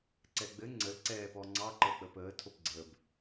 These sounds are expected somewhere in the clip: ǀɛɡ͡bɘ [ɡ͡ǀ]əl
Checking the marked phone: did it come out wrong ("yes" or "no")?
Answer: yes